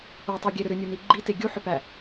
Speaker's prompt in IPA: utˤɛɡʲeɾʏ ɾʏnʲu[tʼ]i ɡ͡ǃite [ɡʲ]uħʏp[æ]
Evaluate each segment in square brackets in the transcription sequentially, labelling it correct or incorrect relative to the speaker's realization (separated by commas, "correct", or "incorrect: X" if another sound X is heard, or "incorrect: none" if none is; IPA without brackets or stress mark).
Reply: incorrect: n, correct, correct